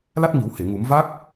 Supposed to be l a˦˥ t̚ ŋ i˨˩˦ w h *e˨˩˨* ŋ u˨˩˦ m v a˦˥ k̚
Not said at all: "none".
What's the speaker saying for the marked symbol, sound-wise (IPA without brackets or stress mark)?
e˨˩˨